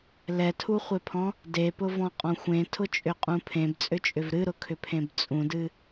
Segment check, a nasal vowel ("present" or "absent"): present